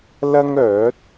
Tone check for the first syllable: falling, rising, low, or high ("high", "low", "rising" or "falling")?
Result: high